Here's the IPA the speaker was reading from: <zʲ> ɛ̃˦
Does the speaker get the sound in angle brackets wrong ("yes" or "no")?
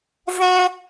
yes